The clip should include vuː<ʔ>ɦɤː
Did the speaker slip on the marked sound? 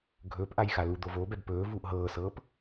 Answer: no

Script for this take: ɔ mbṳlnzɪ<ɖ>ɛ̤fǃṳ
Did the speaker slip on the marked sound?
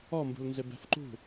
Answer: yes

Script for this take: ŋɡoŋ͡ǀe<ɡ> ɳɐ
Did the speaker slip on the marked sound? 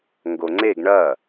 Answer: no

